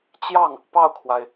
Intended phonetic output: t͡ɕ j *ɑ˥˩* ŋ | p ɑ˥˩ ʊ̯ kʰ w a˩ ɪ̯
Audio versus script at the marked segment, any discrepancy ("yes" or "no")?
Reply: no